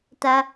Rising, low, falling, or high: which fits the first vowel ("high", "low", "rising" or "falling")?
high